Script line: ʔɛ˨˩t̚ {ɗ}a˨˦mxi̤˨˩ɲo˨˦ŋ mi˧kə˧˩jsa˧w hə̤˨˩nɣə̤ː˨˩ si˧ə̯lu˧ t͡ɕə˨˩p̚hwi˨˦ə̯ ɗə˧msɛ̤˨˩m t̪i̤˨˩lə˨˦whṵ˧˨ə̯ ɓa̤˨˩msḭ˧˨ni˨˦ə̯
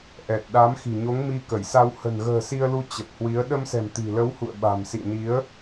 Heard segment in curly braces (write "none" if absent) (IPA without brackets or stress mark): ɗ